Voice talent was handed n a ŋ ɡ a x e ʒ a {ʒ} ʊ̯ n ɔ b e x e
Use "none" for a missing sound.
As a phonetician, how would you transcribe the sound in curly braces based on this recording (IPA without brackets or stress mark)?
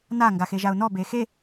none